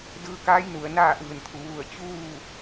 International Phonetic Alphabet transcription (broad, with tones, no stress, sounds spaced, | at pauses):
d ɯː˧ k aː˧˥ j n u˩ ə̯ n aː˥˨ ʔ ɯː˧˩ n t̪ʰ u˩˧ ʋ u˧˩ ə̯ t͡ɕ uː˥˨